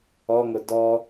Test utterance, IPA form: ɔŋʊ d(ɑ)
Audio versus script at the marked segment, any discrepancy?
yes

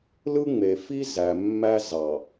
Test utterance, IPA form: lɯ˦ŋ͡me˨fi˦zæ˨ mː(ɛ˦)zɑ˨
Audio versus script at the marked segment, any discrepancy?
yes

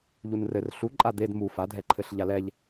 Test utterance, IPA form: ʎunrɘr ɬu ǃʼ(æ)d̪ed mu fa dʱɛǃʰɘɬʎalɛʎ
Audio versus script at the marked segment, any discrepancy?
yes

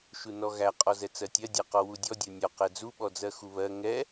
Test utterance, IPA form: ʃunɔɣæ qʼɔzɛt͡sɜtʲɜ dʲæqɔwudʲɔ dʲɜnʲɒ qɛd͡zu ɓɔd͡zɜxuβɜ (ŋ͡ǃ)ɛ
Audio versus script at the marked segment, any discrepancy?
yes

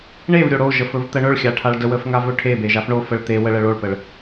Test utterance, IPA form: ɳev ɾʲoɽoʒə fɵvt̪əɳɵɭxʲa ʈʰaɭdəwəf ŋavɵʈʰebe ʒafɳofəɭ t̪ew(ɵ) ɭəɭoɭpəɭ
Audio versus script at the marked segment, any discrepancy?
yes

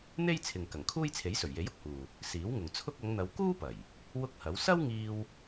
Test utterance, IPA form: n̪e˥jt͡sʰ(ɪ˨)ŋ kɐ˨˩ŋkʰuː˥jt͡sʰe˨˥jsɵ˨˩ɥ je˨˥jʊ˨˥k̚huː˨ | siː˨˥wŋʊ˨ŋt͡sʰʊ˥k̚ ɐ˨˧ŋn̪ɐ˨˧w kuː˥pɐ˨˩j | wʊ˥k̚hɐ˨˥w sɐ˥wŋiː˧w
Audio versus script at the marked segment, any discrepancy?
no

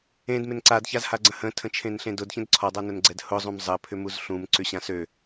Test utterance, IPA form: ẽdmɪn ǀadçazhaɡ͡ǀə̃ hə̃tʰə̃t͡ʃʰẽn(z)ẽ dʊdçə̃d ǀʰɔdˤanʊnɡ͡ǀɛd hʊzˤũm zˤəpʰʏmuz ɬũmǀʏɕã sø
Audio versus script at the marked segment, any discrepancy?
yes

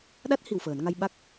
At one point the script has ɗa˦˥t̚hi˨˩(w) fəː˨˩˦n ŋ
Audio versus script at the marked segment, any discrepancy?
no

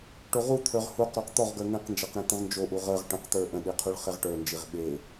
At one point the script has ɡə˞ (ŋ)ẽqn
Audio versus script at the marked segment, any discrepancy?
no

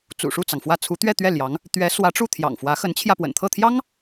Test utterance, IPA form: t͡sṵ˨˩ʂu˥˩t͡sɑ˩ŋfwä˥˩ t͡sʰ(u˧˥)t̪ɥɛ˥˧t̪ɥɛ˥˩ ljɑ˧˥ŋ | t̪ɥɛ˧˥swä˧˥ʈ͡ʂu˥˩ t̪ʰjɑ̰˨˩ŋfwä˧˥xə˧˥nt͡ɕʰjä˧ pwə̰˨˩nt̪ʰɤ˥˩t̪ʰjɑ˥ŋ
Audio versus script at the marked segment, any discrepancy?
no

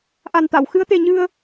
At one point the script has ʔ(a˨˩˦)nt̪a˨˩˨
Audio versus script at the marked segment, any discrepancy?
yes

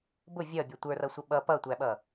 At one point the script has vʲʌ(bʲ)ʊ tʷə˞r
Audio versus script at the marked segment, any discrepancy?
no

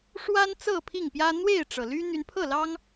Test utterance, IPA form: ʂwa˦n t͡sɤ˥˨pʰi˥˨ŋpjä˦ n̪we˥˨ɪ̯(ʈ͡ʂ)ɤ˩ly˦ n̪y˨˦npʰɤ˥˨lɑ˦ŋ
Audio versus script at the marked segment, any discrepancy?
no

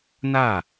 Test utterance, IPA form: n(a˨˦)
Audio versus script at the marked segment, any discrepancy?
yes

